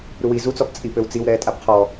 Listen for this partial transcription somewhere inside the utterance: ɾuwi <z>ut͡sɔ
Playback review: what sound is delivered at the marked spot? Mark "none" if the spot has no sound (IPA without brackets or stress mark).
z